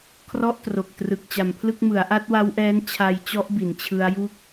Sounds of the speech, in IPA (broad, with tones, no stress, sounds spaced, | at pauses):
kʰ r ɔ˥˩ ʔ t r o˨˩ k̚ t r ɯ˨˩ k̚ t͡ɕ a˨˩ m pʰ l ɯ˥˩ k̚ m ɯ˩˦ a̯ ʔ a˦˥ t̚ w a˦˥ w ʔ ɛː˦˥ n t͡ɕʰ a˧ j t͡ɕ ɔ˦˥ ʔ b i˩˦ n t͡ɕʰ ɯ˦˥ a̯ j u˦˥ k̚